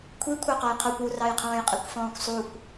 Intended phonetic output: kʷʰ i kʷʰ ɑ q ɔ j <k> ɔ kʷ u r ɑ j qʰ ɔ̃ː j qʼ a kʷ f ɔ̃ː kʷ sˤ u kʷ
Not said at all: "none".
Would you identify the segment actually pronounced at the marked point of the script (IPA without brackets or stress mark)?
qʰ